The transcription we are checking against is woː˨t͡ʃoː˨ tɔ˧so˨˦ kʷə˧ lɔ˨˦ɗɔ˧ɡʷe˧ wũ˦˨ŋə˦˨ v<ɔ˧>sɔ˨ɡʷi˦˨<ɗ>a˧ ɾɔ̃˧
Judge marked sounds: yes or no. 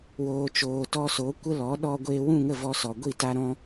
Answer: yes, no

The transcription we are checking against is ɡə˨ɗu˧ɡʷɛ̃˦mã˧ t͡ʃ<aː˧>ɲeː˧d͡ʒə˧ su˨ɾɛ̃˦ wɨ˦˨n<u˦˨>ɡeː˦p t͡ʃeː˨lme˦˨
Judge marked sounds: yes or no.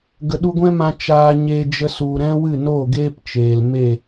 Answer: yes, no

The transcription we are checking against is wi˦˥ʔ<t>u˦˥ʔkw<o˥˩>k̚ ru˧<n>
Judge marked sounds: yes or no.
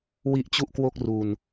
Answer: no, yes, yes

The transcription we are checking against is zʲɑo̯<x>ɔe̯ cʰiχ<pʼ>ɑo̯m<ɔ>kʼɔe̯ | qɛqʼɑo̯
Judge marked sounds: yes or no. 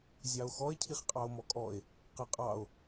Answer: yes, no, yes

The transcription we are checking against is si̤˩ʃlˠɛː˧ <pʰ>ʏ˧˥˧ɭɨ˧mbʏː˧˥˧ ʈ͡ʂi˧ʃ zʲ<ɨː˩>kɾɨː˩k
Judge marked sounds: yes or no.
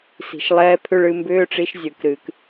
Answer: yes, yes

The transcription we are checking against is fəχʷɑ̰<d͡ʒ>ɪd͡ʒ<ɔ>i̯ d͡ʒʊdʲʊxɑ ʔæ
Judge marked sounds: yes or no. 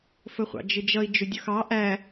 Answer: yes, no

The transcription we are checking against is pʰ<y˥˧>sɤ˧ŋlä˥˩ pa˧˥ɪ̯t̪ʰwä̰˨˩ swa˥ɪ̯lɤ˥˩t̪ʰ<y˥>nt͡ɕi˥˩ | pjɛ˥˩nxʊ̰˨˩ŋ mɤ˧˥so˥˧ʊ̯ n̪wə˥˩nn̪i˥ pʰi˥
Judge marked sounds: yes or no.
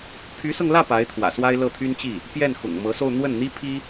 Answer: no, yes

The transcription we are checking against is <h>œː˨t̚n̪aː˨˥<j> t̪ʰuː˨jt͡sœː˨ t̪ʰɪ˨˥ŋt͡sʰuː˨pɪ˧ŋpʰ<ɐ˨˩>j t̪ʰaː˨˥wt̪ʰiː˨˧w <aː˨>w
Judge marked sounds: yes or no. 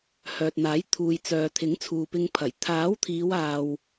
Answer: yes, yes, yes, yes

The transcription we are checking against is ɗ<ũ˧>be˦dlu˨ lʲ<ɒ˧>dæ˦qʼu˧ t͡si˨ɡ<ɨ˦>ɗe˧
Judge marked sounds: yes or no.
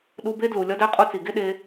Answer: no, yes, no

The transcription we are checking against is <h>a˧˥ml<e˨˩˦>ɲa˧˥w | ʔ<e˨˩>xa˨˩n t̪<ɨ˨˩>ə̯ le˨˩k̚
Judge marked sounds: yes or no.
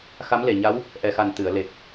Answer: no, no, no, no

